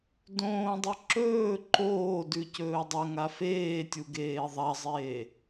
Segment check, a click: present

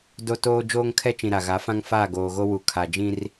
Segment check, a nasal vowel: present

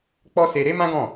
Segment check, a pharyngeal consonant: absent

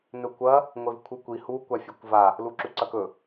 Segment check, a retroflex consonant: absent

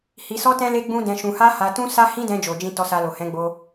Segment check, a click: absent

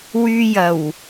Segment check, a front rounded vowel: present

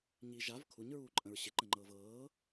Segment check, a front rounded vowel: absent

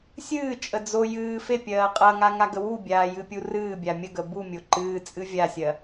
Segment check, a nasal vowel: absent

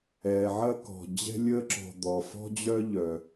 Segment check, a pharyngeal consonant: present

